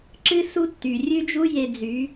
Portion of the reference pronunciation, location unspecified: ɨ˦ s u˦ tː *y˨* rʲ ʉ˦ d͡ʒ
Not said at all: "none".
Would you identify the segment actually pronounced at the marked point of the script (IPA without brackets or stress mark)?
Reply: y˨